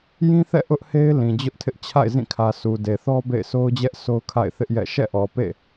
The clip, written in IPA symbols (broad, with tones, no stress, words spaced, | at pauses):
jĩ˦θɛ̰˦˨ ʔʊ˦ʔhe˦ɪ̯ lĩ˨d͡ʑʊ˦ʔtʰɪ˦ʔ t͡ɕʰa̰˦˨ɪ̯zĩ˦˨kʰä˨ sʰu˨de˨θɔ˦ bḛ˦˨ɪ̯so˦ʊ̯d͡ʑɛ˦ʔsʰo˦ʊ̯ kʰa̰˦˨ɪ̯ θɪ˦ʔjɛ̰˦˨ ʃɛ̰˦˨ʔɔ˨pḛ˦˨